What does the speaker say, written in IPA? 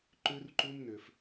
ǃʉ˦rǃu˦mnʏ˨f

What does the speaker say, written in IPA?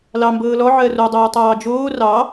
lɑ mbɤːlɔ ʕɜro dˤɤːtˤɑːd͡ʒoː rɑ

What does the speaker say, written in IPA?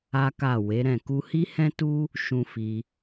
a˦ka˦˨ we˨˦ɾɛ̃˦˨ ku˧hi˦hɛ̃˦tu˦ | ʃũ˧fi˧

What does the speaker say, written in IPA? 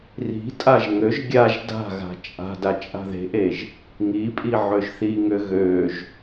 ri̤tʼaʒ ŋøʒ ɡʲaʒ da̤ɣa̤ t͡ʃʼa̤ dat͡ʃʼa̤ðe̤ʔeʒ | ŋipʼi ʕøʒθiŋø ɣøʒ

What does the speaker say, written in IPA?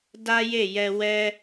da˦je˦˨jɛ˧ wɛ˧

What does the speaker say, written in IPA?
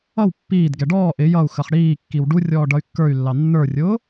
ʌw pːiːd ɡɛɖɔː ʔɪ jʌu̯xəχ ɽiːkːiw ɖurʲɔː ɖʌy̯kːə˞y̯lːɑ nːə˞rʲʊː

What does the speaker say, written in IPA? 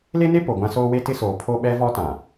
le˦ne˦ po˨ɡʷã˦ soː˦we˦tɪ˦soː˨ pʰo˦ɓɛ˦vɔ˦tã˨

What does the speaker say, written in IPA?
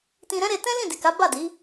tĩ˧ɾɛ̃˦ɾe˧ tɛ̃˦ lĩ˦˨di˨ka˨˦ ba˦˨di˨˦

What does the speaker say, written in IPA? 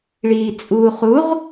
ɭiːt͡sʼuːχuʁ

